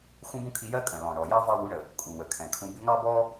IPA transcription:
x ũ˦ b ũ˦ kʰ i˧ j ɜ˦ kʼ ə̃˨ l ɔ̃˨ ɳ ɔ˨ j ɑ˦ v ɑ˧ w u˨˦ ɳ ə˨ | kʼ u˨ w ə˨ kʰ ɛ̃˨ kʰ ũ˧ b ɪ˦ ŋ ɑ˦ b ɔ˦

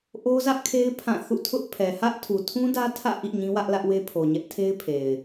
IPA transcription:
ʔ o˦ z ä˦ ʔ kʰ e˦ ɪ̯ pʰ ã˦˨ θ ṵ˦˨ tʰ ʊ˦ ʔ pʰ ɛ˨ h ä˦ ʔ tʰ u˨ tʰ ũ˦ d ä˦ tʰ ä̰˦˨ ʔ ḭ˦˨ ɲ ĩ˦ w ä˦ ʔ l ä˦ ʔ w e˦ pʰ o˨ ɲ ɛ˦ ʔ tʰ e˦ ɪ̯ pʰ e˨ ɪ̯

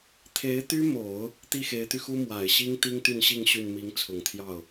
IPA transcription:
t̪ʰ e˧˥ ɪ̯ t̪ y˥ m o˨˩˦ ʊ̯ | t̪ i˥˩ x e˧˥ ɪ̯ t̪ y˧ x u˥ m w a˨˩ ɪ̯ ɕ i˥ ŋ t̪ i˥ ŋ t̪ y˥˧ n ɕ i˥˧ ŋ ɕ y˥˩ n m i˧˥ ŋ t͡sʰ ʊ˨˩ ŋ t̪ʰ j ɑ˥˩ ʊ̯

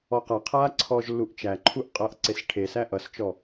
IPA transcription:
ɔ q a qʰ aː ǀʰ ɔː ʒ lː u ʔ t͡ʃ æ ǃʰ u ʔ qʼ ʌː ʔ ǀ e s ʈʰ e s æ ʔ ʌ s t͡ʃ ɔ

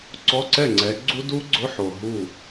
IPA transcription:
ǀ ɔ˧˥˧ ǀ ɛ˥˩ ŋ͡ǀ ɛ˨˦ ɡ͡ǀ u˦˥ d u˦˥ ɡ͡ǀ ʊ˧˥˧ ħ o˨ ɦ u˥˩

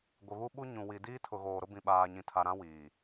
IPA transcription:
ɡʷ ɪ˨ β u˦ ɓ u˦ ɲ ũ˨ w i˨ d iː˦ tʰ ʊ˨ ɣ oː˨ ɾ ʊ˦ b ĩ˨ ɓ aː˨ ɲ ĩ˨ tʰ a˨ ɾ ã˦ w iː˨

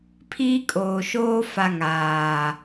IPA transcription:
pʰ iː˦ kʼ oː˨ ʃ oː˦ f a˦ ŋ aː˨

